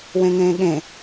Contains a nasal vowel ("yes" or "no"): yes